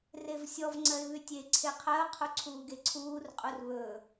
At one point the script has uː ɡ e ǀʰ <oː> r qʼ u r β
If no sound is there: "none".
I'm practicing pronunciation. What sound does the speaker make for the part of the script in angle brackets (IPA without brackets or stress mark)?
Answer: uː